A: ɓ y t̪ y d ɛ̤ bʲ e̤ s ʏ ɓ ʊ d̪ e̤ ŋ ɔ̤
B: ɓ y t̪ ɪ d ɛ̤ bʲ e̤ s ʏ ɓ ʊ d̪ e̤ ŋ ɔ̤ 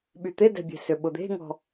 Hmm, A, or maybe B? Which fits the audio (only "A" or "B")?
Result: B